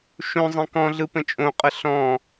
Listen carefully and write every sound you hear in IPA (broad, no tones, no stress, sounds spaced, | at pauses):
ʃ õ zˤ ɛ̃ k ɔ̃ ɮ ɯ p ə̃ t͡ʃʼ õ qʼ ə ɬ ɔ̃ː